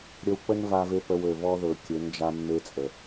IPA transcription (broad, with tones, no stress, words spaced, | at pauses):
ɾʲə˧wk͡pə˦n va˧ve˧ pə˧wø˨vɔ˦ ðɵ˨kʲø˨˦n d͡ʒa˧mːe˧t͡sʼə˨